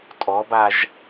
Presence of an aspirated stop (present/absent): absent